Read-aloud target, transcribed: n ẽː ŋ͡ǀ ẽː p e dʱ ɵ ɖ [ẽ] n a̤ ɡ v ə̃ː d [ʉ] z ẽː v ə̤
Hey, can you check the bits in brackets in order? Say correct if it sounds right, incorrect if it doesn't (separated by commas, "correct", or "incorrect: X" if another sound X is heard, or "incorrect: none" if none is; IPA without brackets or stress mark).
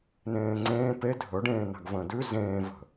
incorrect: ẽː, correct